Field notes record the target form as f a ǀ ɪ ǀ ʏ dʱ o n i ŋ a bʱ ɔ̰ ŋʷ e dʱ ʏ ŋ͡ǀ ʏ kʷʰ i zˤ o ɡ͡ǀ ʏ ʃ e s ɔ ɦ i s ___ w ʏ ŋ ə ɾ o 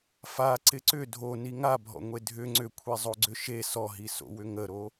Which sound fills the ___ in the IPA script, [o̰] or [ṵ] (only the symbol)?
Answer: o̰